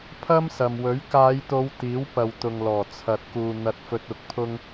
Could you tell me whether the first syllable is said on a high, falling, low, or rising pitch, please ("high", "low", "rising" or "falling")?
high